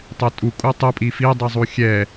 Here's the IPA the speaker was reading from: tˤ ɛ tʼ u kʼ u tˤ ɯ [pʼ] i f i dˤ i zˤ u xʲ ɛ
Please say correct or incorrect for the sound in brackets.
correct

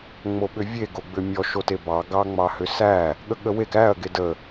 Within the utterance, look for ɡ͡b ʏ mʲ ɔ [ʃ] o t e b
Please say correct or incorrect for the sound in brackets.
correct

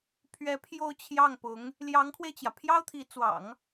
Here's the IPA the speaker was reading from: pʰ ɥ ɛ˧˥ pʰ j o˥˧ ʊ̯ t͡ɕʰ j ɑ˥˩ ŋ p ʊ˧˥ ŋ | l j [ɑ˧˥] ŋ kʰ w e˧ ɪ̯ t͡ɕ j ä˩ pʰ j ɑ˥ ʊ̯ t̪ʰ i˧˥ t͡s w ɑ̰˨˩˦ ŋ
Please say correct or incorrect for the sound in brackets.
correct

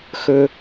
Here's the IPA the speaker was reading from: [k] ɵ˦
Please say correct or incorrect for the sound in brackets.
incorrect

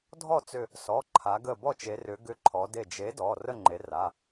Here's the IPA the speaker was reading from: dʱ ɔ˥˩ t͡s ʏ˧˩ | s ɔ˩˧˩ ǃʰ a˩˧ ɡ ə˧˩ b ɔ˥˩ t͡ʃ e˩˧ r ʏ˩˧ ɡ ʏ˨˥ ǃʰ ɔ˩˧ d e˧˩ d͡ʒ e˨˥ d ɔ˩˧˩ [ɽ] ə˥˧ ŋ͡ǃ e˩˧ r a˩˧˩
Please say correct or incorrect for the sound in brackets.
incorrect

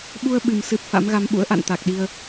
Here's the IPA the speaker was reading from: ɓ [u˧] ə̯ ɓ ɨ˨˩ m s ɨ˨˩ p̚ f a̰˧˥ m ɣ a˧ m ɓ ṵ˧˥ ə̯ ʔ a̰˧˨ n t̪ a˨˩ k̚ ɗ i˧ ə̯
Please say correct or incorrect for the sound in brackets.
correct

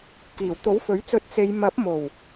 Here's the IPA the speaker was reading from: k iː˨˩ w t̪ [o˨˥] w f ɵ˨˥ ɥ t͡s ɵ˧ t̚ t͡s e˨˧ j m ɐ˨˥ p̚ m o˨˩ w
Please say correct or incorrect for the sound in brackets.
correct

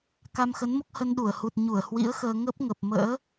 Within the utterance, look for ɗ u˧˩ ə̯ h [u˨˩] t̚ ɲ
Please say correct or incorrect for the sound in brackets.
correct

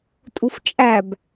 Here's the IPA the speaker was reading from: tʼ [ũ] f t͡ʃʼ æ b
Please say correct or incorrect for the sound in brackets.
incorrect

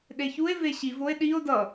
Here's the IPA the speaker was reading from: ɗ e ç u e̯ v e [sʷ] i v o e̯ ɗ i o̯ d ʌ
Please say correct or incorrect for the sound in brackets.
incorrect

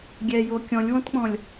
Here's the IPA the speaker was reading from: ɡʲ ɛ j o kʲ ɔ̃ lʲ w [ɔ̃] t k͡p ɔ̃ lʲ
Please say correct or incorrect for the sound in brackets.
correct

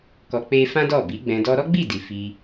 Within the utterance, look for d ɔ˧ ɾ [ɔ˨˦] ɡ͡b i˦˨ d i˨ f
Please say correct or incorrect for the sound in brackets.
incorrect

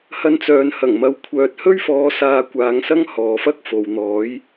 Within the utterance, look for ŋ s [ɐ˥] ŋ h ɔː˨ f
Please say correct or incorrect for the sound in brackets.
correct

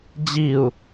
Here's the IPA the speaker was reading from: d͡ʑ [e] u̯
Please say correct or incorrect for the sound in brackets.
incorrect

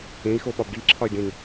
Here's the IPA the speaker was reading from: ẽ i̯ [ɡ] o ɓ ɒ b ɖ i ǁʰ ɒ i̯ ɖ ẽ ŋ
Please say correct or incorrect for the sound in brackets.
incorrect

